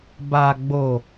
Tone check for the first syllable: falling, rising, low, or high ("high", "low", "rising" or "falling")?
low